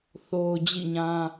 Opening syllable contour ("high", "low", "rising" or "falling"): low